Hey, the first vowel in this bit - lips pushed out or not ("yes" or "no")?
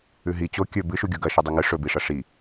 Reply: yes